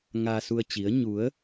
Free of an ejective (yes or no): yes